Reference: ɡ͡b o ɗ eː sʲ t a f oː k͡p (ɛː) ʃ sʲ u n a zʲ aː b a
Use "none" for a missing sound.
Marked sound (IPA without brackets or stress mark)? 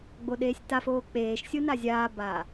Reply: eː